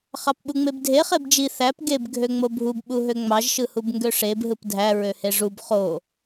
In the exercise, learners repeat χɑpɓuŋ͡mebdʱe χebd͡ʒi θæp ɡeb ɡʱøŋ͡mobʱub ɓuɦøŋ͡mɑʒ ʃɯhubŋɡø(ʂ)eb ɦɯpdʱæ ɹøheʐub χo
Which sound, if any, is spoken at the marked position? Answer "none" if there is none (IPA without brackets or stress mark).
ʂ